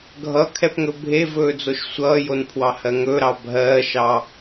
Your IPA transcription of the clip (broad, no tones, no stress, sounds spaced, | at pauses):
ɡʱ ʌ kʰ ɛ p ŋ ɵ bʱ e v ɵː d͡z o ʃ sʷ ʌː j o n pʰ w ɑ h ɜ ŋ ɵ ɾ ɑ bʱ ɜː ʃ ɑ